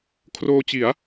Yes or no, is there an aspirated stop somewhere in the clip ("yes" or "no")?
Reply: yes